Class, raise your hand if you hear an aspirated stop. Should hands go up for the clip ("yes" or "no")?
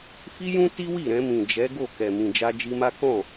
no